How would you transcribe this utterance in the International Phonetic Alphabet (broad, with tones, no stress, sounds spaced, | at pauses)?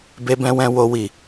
b e˧ b ɛ̃˧ w ɛ̃˧ w o˦ w i˦˨